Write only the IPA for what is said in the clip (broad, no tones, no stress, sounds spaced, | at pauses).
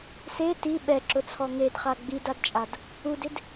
s e t i ɓ ɛ ǁ ʊ t͡sʰ ɔ ŋ e d χ a ɡ͡b i d a d t͡ʃʼ a d | u d ɪ d